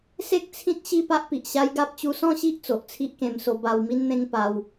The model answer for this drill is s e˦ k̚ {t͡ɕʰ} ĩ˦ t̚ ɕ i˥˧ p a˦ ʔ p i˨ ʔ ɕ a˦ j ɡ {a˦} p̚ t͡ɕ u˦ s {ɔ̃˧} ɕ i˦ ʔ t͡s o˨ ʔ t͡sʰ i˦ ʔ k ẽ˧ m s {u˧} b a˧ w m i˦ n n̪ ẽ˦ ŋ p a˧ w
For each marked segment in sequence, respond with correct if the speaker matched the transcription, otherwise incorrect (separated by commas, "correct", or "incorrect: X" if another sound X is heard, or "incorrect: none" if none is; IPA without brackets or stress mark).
incorrect: t͡sʰ, correct, incorrect: ɔ̃˥˧, incorrect: o˧